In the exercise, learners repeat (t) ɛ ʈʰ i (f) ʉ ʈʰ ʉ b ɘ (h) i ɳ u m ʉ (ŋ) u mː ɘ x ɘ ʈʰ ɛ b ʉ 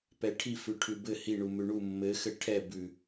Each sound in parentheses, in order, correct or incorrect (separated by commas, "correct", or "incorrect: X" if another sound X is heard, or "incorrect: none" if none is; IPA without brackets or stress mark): incorrect: p, correct, correct, incorrect: ɳ